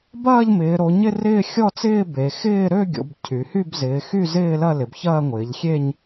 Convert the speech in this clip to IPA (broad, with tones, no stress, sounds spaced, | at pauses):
b ɐː˥˧ ʎ m ɪː˩˧ ɾ o˩˧ ɲ ɪ˥˧ r ɪː˥˧ xʲ ɔ˥˧ t͡s ɪː˥˧ b e˩˧ x ɪː˥˧ ɾ ø˥˧ ɡʲ o̰˩˧ b cʰ y˩˧ h y˥˧ b z ɪː˩˧ x y˥˧ z ɪː˥˧ l ɐ˥˧ l ɪ˩˧ b ç ɐː˥˧ ŋʷ ɪː˩˧ ʎ xʲ e˥˧ ɲ